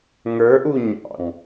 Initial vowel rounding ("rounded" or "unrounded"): unrounded